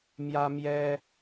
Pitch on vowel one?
high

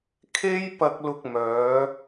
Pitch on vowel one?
high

